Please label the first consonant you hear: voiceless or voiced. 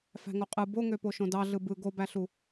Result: voiceless